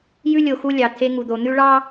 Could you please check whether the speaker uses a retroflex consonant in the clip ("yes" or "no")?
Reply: yes